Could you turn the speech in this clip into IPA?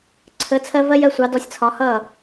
ǀʰə˨˥ t͡sʰɜ˥vɜ˥jɜ˨˥ sʷɑ˨˥dɔ˨˥sʲ t͡sʰɒ˨˥hʌː˥˨

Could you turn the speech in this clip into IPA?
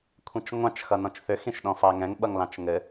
kʷʰĩt͡ʃŋʷɑ̃t͡ʃ xʌnɔ̃t͡ʃθʏ xĩʃɗɔ̃fɑŋɛ̃ŋ ɓʌŋlɑ̃t͡ʃŋɘ

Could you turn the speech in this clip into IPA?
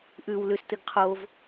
ʔʉw lʉstɨɡ qʰov

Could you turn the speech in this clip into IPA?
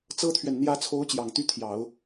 t͡sɤ˥t̪ʰɥɛ˨n n̪jä˧˥t͡sʰo˧˥ʊ̯ t͡ɕjɑ˨˩ŋt̪y˥˩t̪ʰjɑ˨˩˦ʊ̯

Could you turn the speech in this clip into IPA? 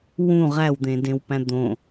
wũ ʁæwd̪ẽdẽwpæ̃ d̪õ

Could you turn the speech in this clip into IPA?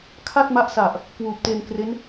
kʰa˥˩t̚ ma˦˥ʔsa˨˩ʔ | kwuː˨˩p̚te˧nkre˦˥n

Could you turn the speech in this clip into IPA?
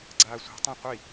ɡ͡ǀaːsʷɑ̤tˤã qʷi

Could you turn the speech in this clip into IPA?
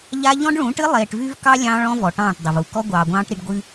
ʎa˦ ʎɔ̃˦ɖɭũː˨˦ʈɨ˦ lˠeː˨ʈvy˦vkɑ˦ lʲɑ̃ː˦ɭɔ̃˦ vɔ˨ʈɑ̃ː˦˨ʈdˤɪ˨v u˨ kɔ˦ɡʷɑː˨ɡʷɑ̃ː˦ʈ ɾi˦ɖ ɡʷɨ˦

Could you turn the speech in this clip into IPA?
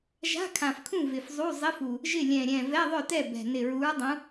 ʒa̤˧˥˧kʰã˨˩fkʰũ˥˩ vɪ˨˩fzˤu˧˥˧ zˤɪ˧˥˧fu˨˩ | ʒɪ˥˩lʲɛ̃˨˩ ɾʲɛ̃˨˩ vɛ˧˥˧ðˤœ˥˩tɛ˥˩ bɛ̤˨˩ nɪ˨˩ɹu˨˦ɹdˤũ˨˦

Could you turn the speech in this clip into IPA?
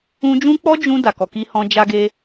ũ˧d͡ʒũ˦k͡pɔ˦ d͡ʒũ˧ da˨kɔ˨ki˧hɔ̃˧ d͡ʒa˧ɡe˧

